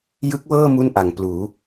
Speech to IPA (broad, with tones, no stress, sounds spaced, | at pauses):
j ɯ˦˥ k̚ w ɤː˥˩ m u˥˩ n ʔ a˩˦ ŋ p l uː˩˦